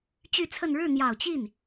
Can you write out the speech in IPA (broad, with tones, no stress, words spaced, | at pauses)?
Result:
t͡ɕy˥˧t͡sʰə˥˧n ɻɻ̩˥˩n̪jɑ˨˩ʊ̯t͡ɕi˥˩n